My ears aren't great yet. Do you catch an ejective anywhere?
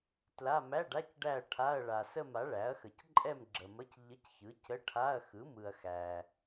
yes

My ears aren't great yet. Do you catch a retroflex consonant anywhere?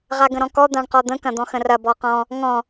yes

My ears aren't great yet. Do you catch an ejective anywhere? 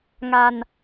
no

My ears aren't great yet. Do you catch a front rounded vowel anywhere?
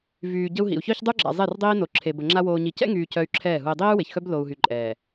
yes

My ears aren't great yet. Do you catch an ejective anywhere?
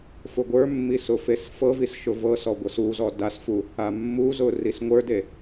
no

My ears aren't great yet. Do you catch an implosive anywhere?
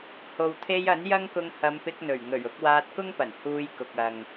no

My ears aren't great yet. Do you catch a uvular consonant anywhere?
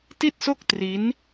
no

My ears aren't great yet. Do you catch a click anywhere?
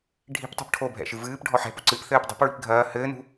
yes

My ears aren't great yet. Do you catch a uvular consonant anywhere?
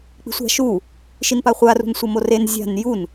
yes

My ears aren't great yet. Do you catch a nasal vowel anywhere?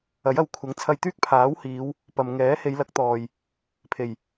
no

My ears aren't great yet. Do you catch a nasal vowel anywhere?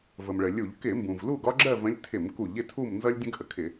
yes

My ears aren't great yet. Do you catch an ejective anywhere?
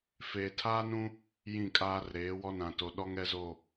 yes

